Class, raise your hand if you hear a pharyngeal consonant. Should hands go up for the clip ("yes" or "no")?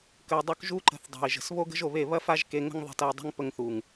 no